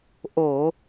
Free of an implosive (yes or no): yes